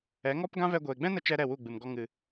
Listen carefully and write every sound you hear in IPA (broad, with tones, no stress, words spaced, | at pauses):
ɛ˨˦ŋɔ˦pɡã˦ vɛ˧ɡʷeː˨ɡ͡bɛ̃˦nə˧ t͡ʃɛ˦ɾɛ˦˨wu˦˨ ɡ͡bɨ˨mɡɔ˧ ŋɨ˨